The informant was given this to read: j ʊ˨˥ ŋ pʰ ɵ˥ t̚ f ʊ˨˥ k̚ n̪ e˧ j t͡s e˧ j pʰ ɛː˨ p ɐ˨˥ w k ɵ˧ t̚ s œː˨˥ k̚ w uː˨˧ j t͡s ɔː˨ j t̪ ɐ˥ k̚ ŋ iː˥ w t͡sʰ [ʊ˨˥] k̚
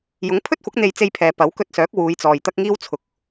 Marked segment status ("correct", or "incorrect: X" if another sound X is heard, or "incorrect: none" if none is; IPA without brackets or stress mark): correct